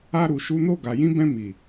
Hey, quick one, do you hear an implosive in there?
no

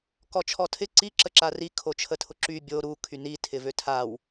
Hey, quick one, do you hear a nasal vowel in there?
no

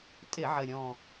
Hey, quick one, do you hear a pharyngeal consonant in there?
yes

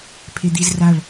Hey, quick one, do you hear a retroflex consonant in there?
yes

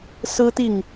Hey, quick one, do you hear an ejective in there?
no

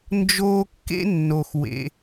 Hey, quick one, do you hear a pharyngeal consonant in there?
no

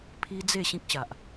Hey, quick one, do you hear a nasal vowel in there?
yes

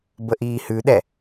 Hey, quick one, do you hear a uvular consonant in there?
no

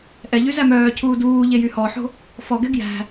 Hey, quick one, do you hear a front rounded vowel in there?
yes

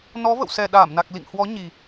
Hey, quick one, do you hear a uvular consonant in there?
no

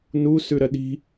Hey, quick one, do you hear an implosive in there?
yes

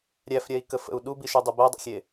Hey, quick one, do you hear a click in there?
no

